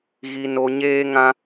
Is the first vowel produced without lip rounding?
yes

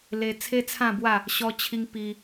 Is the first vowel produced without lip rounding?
yes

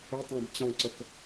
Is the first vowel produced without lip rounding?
no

